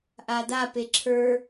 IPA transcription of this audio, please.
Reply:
ʔ a d a p e ǁʰ ə˞

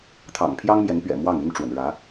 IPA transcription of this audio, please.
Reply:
t̪ʰ ɑ̰˨˩ ŋ pʰ j ɑ˥ ŋ m j ɛ˧˥ n p ɥ ɛ̰˨˩ m w ɑ˥˩ ŋ y˥ n ʈ͡ʂ w ə̰˨˩ n ɻ ä˧˥

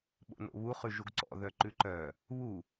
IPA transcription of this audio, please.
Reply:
ɓ o̰ n o̰ β u χ ʉ ʒ u ɡ ǀ ɔ̰ ð œ ǃ ʉ ǃ œ | β u

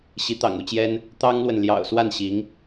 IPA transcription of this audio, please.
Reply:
ɕ i˧˥ t̪ ɑ̰˨˩ ŋ u˥˩ t͡ɕ j ɛ˥ n | t̪ ɑ˥ ŋ l w ə˨ n l j ɑ̰˨˩ ʊ̯ s w a˥˩ n ɕ i˧˥ ŋ

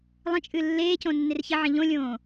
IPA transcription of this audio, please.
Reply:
lˠ ə̃ t͡ʃʼ ɨ lː eː c õ nː e r ç ə ʕ ə̃ ʎ õ lʲ õː

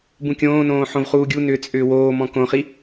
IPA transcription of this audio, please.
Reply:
b ũ kʲ õː n õː ħ õ v χ uː ɡʲ u n ʏː t͡sʼ ʏː w oː m ɔ̃ k õ χ i

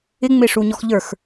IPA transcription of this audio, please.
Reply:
ɪ ŋ͡m ɪ ʂ u ɲ ɔ x ʎ ə˞ x

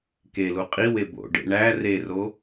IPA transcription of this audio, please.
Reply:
k e l u qʼ i w e b o̰ ɖ ḛ ɳ æ r e r o

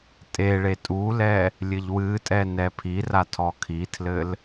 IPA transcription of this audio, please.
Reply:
tʼ e ɭ e tʼ u l ɛ | lʲ ɘ ʎ w ɨ tʼ ɛ n ɛ pʰ i r a tʰ ɔ kʰ i tʰ l ɘ l

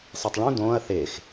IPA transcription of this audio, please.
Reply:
sˤ i tˤ ɭ ũ d õː ɐ̯ θ e x

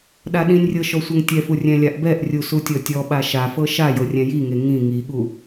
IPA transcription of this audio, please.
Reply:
ɗ a ɗ ĩ nʲ rʲ ɤ ʃ ɔ sʷ ɤ ŋ tʲ ɛ f u rʲ ɛ̃ lʲ a ʔ b ɛ ʔ rʲ u s u tʲ ɔ tʲ ɔ ɓ a ʃ a f ɤ ʃ a j ɤ rʲ ɛ̃ j i ŋ e ŋ ĩ ŋ i ɠ u

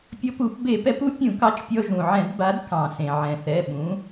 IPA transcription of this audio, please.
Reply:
pʲ ɔ˧ p u˧˩˧ p b e˧˩˧ p ɛ˨˥ p u˨˥ pʲ ũ˧˩˧ k ɑ˧ t͡ʃ pʲ ɔ˧ ʒ ũ˩ ʕ ɛ̃˧˩˧ d b a˨˥ d k ɑ̃˩ s ẽ˩ ʕ ɛ̃˩ θ ɛ˩˧˩ ɓ ũ˨˥

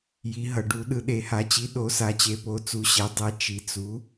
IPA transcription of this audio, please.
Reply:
j i˩˥ ɦ ʌ˩˧ ɖ u˩˥ ɗ ɯ˩˧ ɗ e˩˧ h a˩˥ t͡ɕ i˩˥ ɗ o˩˥ s a˩˥ t͡ɕ e˩˧ p o˩˥ t͡s u˩˥ ɕ ɛ˩˥ dˤ ɛ˩˥ t͡ʃ i˩˧ t͡s u˩˥

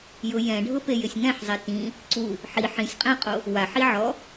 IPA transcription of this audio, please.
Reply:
j ʊ j ɛ̃ ɖʱ ʊ p e j ɪ sʲ ŋ ɛ̃ ħ zˤ e t ĩ | ǀ u | ħ i ħ ĩ sʲ qʼ ɛ̃ qʼ o | w a ħ i ʕ ɔ

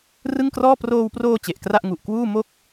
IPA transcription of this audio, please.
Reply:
r ɯ˥˩ ŋ k r ɔː˥˩ p r oː˧ w p r oː˧ t͡ɕ e˨˩ ʔ k r a˥˩ ʔ ŋ u˨˩ ʔ k w uː˥˩ m o˥˩ k̚

